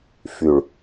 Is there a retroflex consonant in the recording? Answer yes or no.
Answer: yes